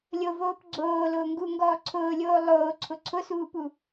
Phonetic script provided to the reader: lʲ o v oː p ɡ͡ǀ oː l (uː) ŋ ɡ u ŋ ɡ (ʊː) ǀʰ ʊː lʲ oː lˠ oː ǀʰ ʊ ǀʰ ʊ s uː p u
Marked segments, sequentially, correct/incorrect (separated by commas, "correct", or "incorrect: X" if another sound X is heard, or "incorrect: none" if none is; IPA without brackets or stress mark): incorrect: ʊː, incorrect: ɔː